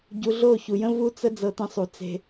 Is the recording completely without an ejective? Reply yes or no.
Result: yes